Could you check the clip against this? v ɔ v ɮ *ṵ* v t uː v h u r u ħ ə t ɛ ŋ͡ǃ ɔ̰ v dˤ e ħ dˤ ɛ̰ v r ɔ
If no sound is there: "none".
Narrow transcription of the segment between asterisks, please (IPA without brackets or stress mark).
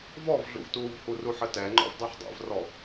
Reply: ṵ